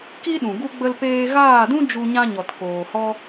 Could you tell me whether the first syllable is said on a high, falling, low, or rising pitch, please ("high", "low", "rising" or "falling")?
high